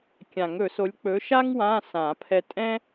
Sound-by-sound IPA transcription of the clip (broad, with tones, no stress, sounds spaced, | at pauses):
kʲ ã˨˩˦ ŋ ɵ˨˩˦ s o˨˥ lʲ k͡p ɵ˨˥ ʃ a˥ ŋ w ã˧˥˧ s ã˨˩˦ pʰ ɛ˧ tʼ ɛ̃˥